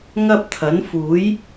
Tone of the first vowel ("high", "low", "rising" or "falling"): high